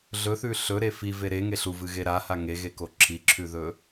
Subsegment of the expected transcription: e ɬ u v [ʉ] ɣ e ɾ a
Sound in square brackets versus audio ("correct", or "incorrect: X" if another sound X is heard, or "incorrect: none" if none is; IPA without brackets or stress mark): incorrect: ɨ